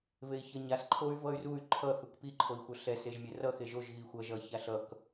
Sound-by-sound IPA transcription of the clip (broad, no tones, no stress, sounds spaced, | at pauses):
v e i̯ ç ʌ ɲ a s ǃʰ o y̯ v ʌ y̯ r u y̯ ǃʰ ʌ θ u k p i ǃʰ o i̯ xʷ ʌ ɬ ɛ s e ʒ mʲ ɛ r ʌ x e ʒ o ʒ ɣ i xʷ ʌ ʒ ʌ ç a ɬ ʌ k